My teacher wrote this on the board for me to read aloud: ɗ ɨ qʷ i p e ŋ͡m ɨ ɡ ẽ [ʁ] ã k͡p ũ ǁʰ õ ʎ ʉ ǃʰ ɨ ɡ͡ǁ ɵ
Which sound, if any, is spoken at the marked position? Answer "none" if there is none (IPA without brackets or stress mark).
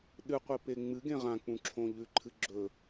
ʁ